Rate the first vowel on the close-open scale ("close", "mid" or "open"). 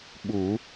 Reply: close